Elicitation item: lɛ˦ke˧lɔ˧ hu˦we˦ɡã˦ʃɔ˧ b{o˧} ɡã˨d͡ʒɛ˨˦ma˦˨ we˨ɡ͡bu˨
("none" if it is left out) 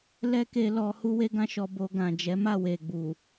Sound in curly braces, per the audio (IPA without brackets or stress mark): o˧